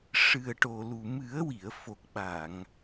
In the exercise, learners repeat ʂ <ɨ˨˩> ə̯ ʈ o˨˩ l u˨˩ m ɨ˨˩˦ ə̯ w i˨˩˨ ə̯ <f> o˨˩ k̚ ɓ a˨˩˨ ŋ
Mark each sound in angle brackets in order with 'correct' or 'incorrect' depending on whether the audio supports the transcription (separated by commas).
correct, correct